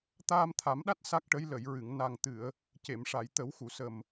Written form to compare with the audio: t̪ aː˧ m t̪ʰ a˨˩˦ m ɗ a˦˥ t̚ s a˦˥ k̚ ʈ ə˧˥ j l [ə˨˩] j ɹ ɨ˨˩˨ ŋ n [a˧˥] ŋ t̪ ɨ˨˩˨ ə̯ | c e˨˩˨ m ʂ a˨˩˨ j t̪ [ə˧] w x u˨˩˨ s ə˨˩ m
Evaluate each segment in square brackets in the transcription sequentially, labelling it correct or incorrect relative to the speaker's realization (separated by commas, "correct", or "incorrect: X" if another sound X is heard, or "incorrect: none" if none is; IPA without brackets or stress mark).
incorrect: ə˨˩˨, incorrect: a˨˩, incorrect: ə˨˩˦